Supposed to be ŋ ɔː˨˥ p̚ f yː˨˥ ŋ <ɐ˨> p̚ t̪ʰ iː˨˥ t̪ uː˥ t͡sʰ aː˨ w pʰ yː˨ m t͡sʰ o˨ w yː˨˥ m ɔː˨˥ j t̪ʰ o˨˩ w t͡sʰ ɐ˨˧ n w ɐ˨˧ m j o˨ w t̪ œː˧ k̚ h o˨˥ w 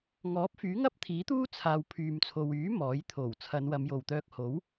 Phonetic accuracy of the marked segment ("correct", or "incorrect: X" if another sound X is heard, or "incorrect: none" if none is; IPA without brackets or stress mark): incorrect: ɐ˥